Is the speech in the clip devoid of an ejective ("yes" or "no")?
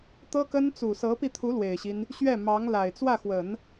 yes